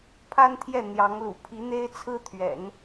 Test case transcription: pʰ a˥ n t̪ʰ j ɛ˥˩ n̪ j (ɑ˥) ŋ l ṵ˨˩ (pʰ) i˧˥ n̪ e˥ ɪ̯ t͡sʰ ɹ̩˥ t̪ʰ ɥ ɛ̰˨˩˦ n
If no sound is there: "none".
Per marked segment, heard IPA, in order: ɑ˧˥, pʰ

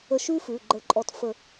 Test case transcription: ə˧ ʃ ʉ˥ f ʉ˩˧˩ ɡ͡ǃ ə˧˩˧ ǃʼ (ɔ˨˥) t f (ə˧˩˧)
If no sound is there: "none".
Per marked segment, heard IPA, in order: ɔ˨˥, ə˧˩˧

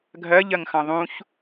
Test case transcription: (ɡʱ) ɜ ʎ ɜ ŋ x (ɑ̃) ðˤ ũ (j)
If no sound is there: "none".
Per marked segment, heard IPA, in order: ɡʱ, ɑ̃, ç

